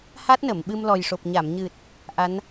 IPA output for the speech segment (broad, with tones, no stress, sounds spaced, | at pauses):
h a˦˥ t̚ n ə˨˩˨ m ɓ ɨ˧ m l ɔ˨˩ j ʂ o˨˩ p̚ ɲ a˨˩˨ m ɲ ɨ˨˩ t̚ | ʔ a˧˥ n